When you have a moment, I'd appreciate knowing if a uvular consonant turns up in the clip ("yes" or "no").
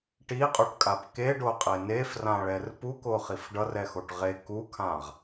yes